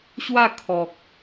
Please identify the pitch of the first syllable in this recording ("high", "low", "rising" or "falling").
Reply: falling